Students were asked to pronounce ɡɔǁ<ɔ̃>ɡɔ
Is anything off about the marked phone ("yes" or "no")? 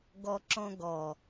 no